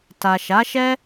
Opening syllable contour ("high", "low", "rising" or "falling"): low